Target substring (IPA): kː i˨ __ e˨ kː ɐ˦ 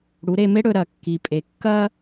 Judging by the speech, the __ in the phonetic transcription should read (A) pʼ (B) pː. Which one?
A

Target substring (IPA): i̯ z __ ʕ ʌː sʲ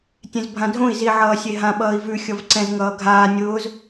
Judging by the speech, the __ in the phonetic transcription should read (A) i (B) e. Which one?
A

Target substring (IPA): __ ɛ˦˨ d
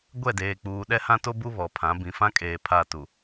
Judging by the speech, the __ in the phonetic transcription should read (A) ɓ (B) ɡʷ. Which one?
B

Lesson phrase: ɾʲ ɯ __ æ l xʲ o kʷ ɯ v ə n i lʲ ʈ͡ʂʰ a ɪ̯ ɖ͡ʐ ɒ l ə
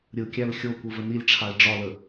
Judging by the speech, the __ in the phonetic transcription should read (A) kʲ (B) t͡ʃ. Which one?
A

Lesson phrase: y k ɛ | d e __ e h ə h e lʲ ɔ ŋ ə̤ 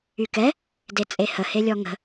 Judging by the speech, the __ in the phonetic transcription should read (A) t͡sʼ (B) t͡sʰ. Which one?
A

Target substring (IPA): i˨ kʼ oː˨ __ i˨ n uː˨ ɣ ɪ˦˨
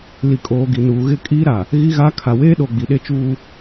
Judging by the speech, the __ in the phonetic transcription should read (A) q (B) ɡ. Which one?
B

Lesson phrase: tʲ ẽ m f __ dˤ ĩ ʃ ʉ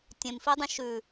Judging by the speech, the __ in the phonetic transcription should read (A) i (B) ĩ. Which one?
A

